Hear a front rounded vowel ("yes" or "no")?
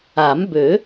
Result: yes